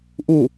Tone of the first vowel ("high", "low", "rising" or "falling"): falling